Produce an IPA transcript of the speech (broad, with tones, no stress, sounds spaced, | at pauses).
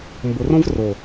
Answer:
m b ʊ˨ r õ˦ v r o˨